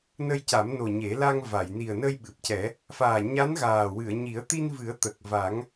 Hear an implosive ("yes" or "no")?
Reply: yes